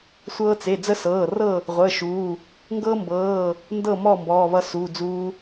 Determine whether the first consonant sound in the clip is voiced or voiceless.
voiceless